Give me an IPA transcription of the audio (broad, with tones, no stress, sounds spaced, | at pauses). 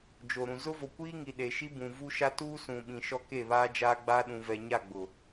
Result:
d͡ʒ o˨ ɾ ũ˨ z ʊ˦ v o˨ kʷ iː˦ ŋ i˨ ɗ e˨ ʃ i˦ b ũ˨ v u˦ ʃ a˦ t uː˦ s ũ˨ ɓ ĩ˨ ʃ ɔ˦ k e˦˨ β aː˦ d͡ʒ aː˦ ɡ͡b aː˦ ɗ ũ˨ v ɛ˨ ɲ a˦˨ ɡ͡b ʊ˨